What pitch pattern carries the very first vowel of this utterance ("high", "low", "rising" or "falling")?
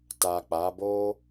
low